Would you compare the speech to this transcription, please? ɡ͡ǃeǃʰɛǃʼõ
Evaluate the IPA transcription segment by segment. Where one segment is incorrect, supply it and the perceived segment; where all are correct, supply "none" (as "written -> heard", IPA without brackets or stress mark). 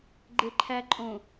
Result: ɛ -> æ